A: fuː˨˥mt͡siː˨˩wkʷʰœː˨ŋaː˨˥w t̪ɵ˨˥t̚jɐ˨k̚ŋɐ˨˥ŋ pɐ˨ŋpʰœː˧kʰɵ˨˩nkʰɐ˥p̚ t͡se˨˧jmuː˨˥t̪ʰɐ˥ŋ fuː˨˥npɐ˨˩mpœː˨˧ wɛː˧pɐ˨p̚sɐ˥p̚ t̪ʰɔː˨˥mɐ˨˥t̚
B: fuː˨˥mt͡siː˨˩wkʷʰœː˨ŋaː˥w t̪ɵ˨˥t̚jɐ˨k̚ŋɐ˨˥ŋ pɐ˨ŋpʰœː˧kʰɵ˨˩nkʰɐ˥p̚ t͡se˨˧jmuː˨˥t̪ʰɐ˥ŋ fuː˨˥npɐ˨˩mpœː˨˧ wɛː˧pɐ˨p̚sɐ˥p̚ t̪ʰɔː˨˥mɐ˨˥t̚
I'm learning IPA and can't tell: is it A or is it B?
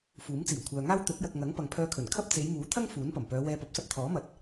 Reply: B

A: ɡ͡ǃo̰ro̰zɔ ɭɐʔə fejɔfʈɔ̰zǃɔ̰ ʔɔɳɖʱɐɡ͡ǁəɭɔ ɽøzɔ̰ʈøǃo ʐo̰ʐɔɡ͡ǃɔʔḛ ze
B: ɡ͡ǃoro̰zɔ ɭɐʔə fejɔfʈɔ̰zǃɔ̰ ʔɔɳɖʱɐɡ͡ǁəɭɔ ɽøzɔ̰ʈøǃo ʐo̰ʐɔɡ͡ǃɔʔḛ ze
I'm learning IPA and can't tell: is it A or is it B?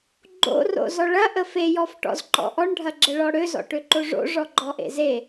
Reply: A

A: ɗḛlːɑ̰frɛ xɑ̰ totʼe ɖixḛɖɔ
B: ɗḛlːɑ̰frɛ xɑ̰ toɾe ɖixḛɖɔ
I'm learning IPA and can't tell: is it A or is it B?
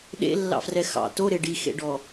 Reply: B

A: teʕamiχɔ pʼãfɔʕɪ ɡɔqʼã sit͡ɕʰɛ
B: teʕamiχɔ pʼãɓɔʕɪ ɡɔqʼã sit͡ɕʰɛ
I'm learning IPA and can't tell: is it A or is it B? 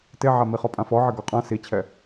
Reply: A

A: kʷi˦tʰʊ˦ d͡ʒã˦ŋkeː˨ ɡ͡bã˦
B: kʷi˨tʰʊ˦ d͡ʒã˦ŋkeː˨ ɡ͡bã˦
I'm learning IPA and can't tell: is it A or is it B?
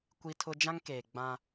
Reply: A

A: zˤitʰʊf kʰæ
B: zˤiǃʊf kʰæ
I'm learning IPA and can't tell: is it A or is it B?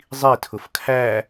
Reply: A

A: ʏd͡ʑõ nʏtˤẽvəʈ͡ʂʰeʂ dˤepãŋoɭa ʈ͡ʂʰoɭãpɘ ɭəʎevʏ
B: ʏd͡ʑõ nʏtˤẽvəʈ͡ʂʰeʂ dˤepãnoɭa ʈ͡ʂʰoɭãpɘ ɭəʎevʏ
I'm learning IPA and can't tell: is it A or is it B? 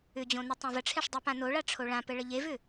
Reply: B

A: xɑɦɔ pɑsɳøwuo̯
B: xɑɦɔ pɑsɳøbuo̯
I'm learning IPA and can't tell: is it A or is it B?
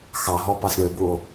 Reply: B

